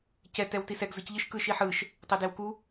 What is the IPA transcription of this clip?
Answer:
c ɛ t ɛ w t i s ɛ ɡ z ɯ c ʎ ɯ ʃ k ɯ ʃ i ħ ɯ ʃ | tˤ ɛ d e w k u

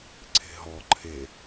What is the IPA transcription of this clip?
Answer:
ǀʰ e̤ ɦ ɔ ǃʰ e

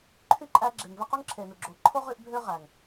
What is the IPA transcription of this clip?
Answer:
ǃʰ y˥ ǃʼ æ˦ ɡ͡ǁ e˨ ŋ v e˥ q o˥ ŋ ǁʰ e˩ n u˩ ɡ͡ǁ o˨ ǃʰ o˥ ʁ y˦ ʔ bʱ ø˦ ʁ æ˩ ŋ

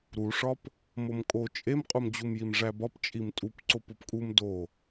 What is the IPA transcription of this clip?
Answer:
ɾ u ʂ ɒ p | m o m kʼ o t͡ʃʼ e m qʼ u m d͡ʑ u m j i m ʐ æ b ɒ p t͡ʃʼ i m tʼ u p ǀ o p o p kʼ u m d o

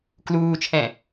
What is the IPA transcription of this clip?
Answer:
k l uː t͡ʃʰ ɛ̃

